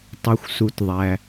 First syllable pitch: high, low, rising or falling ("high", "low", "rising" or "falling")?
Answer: low